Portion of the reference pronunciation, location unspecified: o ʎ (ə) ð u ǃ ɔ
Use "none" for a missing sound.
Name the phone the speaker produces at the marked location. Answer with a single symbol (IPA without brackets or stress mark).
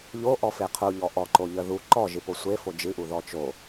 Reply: ə